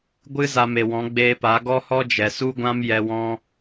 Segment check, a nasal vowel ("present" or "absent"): present